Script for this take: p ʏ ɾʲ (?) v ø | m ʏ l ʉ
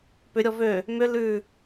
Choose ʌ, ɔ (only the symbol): ɔ